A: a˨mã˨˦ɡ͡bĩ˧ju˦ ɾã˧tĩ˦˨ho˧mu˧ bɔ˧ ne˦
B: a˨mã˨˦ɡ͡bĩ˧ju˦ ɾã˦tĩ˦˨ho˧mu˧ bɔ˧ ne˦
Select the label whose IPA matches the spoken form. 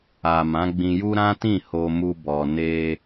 B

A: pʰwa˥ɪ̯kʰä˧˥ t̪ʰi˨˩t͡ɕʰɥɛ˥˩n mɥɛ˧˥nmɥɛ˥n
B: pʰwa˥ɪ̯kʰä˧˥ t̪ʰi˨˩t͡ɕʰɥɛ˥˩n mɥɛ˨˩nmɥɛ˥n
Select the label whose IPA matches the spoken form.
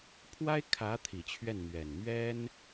B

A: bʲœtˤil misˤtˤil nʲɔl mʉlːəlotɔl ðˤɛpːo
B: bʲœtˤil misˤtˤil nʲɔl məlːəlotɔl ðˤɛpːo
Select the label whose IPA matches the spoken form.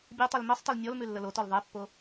A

